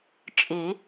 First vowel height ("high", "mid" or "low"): high